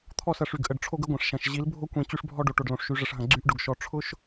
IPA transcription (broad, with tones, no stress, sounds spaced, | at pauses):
t̪ʰ ɔ˦˨ s ɐ˨ ʂ y˨ ɡ ʔ ə˨ ɖ ʈ͡ʂʰ o˦ ɡ ə˦ ɡʷ ɐ̃˨ ʂ ʃ ɐ̃˨ ʃ ʑ i˨˦ l bʱ o˦ kʷ ĩ˨ t͡ɕ y˦ ʂ bʱ ɔ˦ ɖ o˨ ʈ o˨ ɖ l õ˨ ʂ ʃ y˨˦ ʐ ə˨ ʂ ɦ ɐ̃˨ ɡ͡ǀ y˦ ʔ ɖ ʊ˨ ɡ ʃ ɔ˨ ʈ͡ʂʰ ʊ˦ ʃ